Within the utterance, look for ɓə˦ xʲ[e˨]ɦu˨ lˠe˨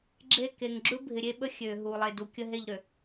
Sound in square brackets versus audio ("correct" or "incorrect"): incorrect